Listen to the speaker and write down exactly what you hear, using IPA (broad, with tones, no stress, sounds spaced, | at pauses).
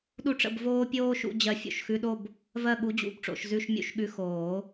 ɗ u˥˧ ʈ͡ʂ ə̰˥˧ b v oː˥ pʲ oː˥ ʃ ṵ˧˥˧ d͡ʑ ɜ˧˥ fʲ o̰˧˥ ʃ x ʉ˧˥˧ ɗ o˥˧ b | v ɜ˥˧ ɠ u˧˥ d͡ʑ ṵ˨˩˦ b ʈ͡ʂ o̰˨˩˦ ʃ z ʉ˧˥˧ ʃ mʲ ṵ˧˥˧ ʃ ɠ ʉ˧˥˧ x oː˨˩˦